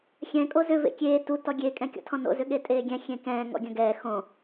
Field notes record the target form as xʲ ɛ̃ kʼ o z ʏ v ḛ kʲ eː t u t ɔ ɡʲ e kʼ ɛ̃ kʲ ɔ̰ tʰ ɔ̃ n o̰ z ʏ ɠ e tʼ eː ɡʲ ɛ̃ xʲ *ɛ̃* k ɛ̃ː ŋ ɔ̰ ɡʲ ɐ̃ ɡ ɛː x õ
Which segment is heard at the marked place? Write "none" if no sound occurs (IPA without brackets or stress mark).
ẽ